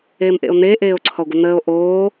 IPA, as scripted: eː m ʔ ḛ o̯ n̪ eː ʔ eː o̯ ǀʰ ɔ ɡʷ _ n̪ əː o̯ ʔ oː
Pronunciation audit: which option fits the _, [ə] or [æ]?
ə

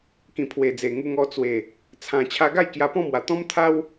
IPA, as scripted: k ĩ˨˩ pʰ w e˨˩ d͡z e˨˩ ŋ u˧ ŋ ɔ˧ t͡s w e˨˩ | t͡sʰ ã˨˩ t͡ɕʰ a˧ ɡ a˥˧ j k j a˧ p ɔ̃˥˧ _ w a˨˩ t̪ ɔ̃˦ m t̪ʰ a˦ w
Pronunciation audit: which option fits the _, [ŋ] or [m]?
m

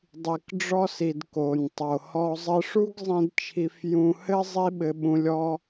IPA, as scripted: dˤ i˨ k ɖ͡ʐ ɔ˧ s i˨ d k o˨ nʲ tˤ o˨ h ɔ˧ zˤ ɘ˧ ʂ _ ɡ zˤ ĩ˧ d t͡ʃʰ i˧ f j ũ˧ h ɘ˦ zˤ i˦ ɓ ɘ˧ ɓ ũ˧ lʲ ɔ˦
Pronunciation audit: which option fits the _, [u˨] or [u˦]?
u˦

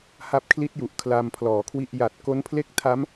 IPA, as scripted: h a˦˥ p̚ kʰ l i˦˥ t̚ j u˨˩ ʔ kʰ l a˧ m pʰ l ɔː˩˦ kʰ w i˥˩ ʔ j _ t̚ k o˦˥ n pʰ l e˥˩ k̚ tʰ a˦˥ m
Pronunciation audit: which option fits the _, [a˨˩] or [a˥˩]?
a˨˩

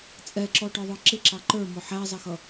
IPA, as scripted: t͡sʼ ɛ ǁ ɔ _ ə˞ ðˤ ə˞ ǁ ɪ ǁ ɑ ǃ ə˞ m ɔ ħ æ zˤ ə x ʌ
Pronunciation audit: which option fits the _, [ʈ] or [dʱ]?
ʈ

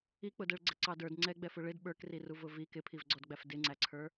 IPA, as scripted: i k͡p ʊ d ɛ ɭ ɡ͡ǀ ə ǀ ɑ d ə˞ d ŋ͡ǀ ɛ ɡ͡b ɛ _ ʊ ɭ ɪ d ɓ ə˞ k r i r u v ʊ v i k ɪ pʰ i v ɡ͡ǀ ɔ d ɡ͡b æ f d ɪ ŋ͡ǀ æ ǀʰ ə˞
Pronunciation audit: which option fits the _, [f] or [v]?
f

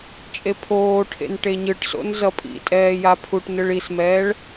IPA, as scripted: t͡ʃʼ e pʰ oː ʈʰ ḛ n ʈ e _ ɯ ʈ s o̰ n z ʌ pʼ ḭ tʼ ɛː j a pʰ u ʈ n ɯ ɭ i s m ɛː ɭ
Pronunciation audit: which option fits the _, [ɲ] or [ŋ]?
ɲ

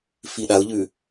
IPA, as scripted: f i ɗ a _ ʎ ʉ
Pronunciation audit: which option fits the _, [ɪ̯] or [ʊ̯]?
ʊ̯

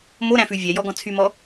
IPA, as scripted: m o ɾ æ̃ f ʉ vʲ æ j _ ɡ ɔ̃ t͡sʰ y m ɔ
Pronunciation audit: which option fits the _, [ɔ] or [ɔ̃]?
ɔ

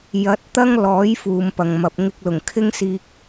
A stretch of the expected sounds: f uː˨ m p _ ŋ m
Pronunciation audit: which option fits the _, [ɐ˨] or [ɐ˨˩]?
ɐ˨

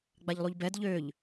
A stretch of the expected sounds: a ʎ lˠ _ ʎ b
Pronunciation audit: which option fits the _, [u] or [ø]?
u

